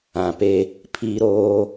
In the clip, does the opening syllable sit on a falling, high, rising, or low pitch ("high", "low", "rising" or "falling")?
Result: low